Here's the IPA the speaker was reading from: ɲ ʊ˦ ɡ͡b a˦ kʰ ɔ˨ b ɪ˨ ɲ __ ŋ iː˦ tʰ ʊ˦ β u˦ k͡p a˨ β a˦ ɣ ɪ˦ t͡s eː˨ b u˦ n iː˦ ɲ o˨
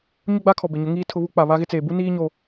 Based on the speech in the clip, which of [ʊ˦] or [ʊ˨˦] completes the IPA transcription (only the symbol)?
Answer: ʊ˨˦